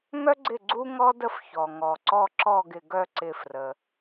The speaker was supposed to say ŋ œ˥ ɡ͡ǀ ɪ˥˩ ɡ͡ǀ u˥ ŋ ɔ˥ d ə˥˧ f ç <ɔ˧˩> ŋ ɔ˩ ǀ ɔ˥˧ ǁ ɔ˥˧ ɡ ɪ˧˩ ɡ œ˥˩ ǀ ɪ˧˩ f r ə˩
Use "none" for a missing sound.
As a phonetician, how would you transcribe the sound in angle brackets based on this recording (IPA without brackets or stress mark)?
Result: ɔ˩